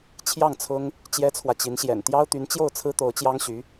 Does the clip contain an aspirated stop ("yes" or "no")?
yes